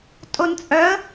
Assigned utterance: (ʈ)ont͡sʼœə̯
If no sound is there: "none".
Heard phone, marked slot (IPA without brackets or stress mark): tʼ